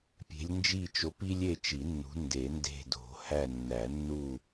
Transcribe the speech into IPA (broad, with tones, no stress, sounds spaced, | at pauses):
pʲ e̤˨˦ lʲ n d͡ʒ i˦˨ t͡ʃ o˨˦ p i˦ lʲ e˦˨ t͡ʃ i˨˩˦ nː ṳ˨˦ n d e˨˩˦ n d e̤˦˨ d o̤˨˩˦ h æ˦˨ nː æ˨˩˦ nː u˦˨